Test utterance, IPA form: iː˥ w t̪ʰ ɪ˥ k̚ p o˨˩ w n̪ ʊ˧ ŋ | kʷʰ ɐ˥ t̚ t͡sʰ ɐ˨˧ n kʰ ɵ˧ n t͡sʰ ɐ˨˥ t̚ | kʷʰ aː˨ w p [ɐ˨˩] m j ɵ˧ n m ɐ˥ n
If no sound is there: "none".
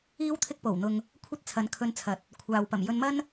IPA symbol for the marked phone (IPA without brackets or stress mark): ɐ˨˩